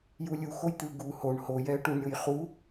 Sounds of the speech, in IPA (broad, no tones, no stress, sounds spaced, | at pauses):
j u lʲ u x o j t̪ ɯ ɡ u h o ɳ h o j ɛ ə̯ ʈ u ɳ ɾʲ o j χ u